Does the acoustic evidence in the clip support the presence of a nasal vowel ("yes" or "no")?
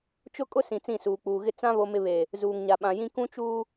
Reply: yes